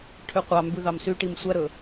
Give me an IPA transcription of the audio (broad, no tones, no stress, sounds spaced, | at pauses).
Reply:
ʈʰ ø qʷ ɑ m b ʉ ð ɑ m s y ʈ i m sʷ æ ɾ ɵ